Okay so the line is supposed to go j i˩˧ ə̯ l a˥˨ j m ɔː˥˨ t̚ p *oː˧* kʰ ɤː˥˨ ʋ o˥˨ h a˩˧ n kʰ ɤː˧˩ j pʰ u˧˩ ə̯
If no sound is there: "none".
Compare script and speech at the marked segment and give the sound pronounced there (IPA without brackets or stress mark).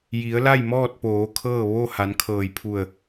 oː˩˧